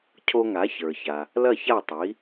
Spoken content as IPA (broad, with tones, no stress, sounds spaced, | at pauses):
cʰ o˧ ŋ a˩˥ ç ə˞˩ ç a˩ | l ɐ˥˩ ç a˥˩ tˤ i˩˥